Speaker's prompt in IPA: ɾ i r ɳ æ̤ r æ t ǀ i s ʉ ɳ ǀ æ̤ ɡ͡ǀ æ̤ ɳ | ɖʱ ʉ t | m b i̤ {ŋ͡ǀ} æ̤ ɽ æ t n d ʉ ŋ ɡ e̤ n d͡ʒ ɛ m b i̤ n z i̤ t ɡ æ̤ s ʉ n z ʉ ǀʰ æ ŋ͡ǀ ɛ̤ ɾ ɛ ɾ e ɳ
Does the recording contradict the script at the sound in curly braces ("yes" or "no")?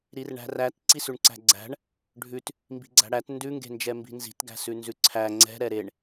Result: yes